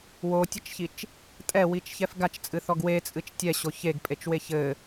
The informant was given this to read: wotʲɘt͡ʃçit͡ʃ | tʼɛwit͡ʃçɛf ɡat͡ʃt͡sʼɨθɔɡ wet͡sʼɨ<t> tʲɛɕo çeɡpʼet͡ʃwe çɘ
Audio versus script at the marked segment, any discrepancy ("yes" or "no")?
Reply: yes